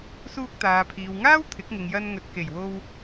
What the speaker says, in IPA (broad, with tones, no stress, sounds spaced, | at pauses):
s uː˧ k̚ t̪ aː˨ pʰ iː˨ w ŋ aː˥ w t̪ʰ ɪ˨˥ k̚ ŋ ɪ˨ ŋ j ɐ˧ n ŋ ɵ˨ t̚ k e˨˩ j w o˧ w